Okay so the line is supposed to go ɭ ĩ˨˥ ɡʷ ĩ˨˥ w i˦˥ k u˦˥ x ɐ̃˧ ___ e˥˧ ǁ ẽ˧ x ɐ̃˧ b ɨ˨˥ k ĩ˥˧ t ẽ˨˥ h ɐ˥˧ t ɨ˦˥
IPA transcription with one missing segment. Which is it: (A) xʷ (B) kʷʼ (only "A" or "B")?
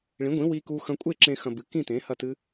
B